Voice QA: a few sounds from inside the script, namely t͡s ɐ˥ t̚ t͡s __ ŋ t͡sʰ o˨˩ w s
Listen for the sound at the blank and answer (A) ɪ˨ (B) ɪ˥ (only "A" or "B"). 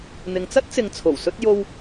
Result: A